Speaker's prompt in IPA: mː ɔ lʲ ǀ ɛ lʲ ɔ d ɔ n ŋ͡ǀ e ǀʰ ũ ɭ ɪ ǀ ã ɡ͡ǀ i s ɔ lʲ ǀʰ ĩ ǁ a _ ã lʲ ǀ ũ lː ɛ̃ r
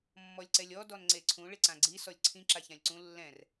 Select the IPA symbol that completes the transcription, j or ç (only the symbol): ç